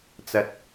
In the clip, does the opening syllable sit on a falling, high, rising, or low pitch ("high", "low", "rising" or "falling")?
low